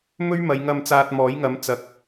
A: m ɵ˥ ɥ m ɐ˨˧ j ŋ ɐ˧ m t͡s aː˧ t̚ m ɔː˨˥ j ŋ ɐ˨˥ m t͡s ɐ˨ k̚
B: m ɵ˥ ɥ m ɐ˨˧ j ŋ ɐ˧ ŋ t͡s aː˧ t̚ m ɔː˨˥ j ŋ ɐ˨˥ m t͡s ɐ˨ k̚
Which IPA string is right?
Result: A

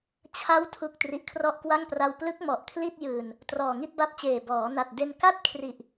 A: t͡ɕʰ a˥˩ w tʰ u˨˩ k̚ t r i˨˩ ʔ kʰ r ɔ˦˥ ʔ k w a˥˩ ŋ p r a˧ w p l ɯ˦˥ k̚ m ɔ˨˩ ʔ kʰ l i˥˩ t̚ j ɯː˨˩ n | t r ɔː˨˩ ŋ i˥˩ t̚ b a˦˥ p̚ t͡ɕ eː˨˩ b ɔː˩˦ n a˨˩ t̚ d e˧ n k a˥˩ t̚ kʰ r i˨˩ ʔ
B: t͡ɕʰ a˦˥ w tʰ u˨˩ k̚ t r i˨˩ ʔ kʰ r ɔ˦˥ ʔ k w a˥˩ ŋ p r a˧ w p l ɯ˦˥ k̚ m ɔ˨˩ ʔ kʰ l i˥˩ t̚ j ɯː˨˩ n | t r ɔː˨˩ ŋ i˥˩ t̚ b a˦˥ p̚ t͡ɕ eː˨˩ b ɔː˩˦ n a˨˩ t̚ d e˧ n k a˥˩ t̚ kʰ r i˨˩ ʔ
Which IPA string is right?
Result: B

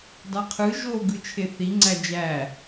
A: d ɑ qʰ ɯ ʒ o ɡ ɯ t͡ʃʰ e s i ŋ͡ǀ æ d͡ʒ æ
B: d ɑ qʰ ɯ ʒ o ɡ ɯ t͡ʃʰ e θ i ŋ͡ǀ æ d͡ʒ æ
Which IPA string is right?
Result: B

